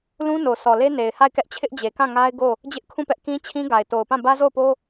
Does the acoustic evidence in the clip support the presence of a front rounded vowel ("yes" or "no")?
no